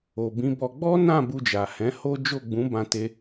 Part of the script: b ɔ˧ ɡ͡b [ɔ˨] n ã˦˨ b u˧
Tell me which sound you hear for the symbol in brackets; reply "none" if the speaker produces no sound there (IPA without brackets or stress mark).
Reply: ɔ˦